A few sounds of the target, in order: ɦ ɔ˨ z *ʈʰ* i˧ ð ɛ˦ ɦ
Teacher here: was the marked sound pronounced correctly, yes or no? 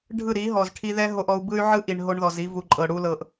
yes